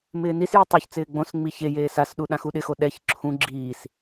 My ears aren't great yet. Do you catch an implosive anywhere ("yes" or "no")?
yes